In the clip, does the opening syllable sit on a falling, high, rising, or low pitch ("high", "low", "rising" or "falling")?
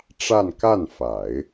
falling